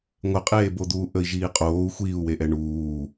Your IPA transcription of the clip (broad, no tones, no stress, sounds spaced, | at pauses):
ŋʷ ɘ qʼ eː b o d̪ uː ʔ ə i̯ ʒ iː qʼ oː u̯ xʷ iː u̯ w e ʔ ɛ ɳ uː